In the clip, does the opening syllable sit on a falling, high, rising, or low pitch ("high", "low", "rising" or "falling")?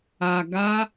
low